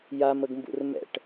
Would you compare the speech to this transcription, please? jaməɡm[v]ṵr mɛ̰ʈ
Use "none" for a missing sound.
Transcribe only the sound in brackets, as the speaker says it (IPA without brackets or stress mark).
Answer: b